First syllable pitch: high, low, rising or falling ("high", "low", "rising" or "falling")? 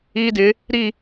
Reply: high